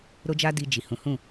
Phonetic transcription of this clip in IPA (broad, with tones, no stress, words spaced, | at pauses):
ɾo˦d͡ʒa˦di˧ d͡ʒi˨hũ˨˦hũ˦˨